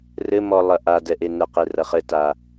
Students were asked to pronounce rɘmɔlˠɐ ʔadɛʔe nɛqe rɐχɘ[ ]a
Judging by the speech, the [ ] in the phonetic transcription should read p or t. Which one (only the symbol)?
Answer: t